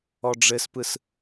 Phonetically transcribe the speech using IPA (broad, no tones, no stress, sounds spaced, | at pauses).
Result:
ɔ ɖ͡ʐ ɘ s p ɯ s